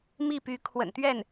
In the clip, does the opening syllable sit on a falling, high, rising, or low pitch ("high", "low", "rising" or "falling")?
falling